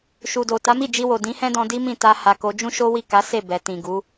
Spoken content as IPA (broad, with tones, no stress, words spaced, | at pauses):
ʃu˨do˨ ta˨˦mi˦˨d͡ʒi˧wo˨ dĩ˨˦hɛ̃˦dɔ̃˧ di˦mĩ˦˨ ta˧ ha˨ko˨˦ d͡ʒũ˦ʃo˦ wi˦˨ka˨˦ se˦˨ bɛ˨tĩ˨ɡu˨˦